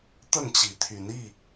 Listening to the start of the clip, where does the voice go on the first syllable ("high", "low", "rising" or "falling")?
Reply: falling